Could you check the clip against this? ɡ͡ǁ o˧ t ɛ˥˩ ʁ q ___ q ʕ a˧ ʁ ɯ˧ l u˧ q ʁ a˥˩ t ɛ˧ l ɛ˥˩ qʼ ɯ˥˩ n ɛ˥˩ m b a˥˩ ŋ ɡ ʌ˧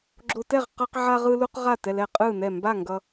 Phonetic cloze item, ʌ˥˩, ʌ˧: ʌ˧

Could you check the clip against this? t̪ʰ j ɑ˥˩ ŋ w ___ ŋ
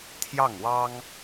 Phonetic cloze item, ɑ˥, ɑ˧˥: ɑ˥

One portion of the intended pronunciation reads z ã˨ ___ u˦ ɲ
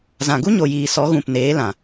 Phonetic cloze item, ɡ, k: ɡ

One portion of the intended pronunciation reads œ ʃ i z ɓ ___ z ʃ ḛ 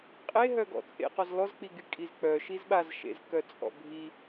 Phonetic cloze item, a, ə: a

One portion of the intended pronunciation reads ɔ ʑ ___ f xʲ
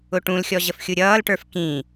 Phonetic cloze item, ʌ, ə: ə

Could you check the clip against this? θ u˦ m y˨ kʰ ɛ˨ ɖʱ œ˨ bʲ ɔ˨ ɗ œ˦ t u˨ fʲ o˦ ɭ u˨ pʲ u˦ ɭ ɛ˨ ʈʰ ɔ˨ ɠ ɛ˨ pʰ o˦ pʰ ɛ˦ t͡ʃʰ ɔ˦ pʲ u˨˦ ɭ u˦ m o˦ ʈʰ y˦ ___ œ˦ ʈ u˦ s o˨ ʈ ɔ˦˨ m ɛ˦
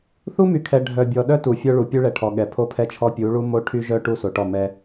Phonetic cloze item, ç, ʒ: ʒ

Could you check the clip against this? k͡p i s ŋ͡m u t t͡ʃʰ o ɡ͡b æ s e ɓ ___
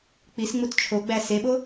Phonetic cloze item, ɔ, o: o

